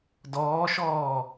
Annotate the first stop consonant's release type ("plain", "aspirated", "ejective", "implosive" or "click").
plain